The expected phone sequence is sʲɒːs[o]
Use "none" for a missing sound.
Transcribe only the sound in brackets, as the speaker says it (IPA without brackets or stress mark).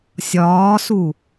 u